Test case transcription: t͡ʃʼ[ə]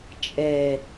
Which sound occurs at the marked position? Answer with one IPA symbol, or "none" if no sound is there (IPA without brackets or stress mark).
ɛ